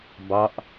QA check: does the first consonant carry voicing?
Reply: yes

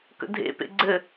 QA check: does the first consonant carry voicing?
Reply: no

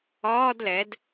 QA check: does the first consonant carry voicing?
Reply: yes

